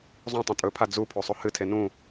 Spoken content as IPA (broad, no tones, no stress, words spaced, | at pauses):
zˤũ tˤẽtʼɵpʰa d͡zupʰo sˤohɨtʰe nũ